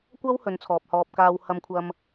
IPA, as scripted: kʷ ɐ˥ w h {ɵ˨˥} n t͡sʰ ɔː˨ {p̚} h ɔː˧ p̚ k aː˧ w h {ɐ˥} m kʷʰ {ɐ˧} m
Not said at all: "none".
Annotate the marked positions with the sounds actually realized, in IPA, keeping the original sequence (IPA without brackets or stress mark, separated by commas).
ɵ˨˧, p̚, ɐ˧, ɐ˧